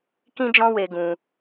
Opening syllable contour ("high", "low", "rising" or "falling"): high